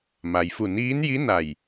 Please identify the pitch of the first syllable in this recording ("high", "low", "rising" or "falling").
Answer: low